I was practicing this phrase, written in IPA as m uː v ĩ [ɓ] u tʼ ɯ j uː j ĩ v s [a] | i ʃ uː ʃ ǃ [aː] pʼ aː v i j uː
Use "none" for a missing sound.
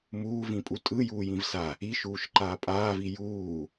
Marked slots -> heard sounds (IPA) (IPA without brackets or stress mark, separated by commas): pʼ, a, aː